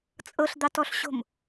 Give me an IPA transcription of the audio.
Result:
t͡sʼ ɤ ɬ d̪ ɑ t ɔ ɬ ɕ o̤ m

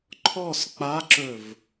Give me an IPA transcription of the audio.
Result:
ǃʰ ɔ s k͡p a ǁ ɵ v

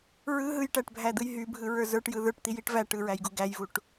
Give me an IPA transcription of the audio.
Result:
ɹ ɯ ɦ ɯ j ʈ æ ʈ bʱ æ d̪ ɯ j ɦ y bʱ ɯ ɹ ə˞ z ə˞ ʈ j ɯ ð ə˞ ʈ t̪ i j i ʈ v æ ʈ ɯ ɹ æ j ɡ u ɡ æ j v u ʈ

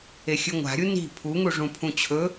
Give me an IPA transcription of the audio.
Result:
e xʲ ɨ ŋʷ a̤ ɾʲ u n i̤ pʰ u ŋ u ʐ ũ pʰ ũ t͡ɕʰ ɵ

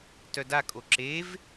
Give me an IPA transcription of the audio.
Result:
t œ d a kʼ o ǁ e v

